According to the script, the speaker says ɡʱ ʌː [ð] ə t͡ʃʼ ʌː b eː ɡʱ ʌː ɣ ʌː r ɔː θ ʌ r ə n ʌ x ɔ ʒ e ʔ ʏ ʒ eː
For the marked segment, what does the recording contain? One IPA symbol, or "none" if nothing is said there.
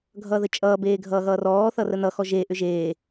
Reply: ð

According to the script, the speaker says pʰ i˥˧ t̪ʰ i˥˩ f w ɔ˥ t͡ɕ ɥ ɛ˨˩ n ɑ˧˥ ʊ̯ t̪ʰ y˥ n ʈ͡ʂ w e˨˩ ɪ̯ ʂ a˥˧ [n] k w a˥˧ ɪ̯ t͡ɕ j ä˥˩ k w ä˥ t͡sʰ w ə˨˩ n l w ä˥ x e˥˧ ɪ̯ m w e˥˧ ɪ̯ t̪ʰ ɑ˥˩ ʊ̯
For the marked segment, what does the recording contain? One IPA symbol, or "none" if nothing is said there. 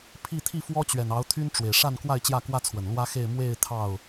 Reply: n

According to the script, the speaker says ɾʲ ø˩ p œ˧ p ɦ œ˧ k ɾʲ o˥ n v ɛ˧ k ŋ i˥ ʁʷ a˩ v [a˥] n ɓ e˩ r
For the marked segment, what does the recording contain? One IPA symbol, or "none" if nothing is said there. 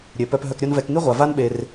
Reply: a˥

